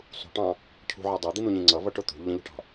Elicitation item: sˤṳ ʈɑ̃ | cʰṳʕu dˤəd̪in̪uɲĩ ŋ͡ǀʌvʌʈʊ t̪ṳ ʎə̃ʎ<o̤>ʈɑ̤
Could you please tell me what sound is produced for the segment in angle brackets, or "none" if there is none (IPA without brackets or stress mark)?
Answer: ṳ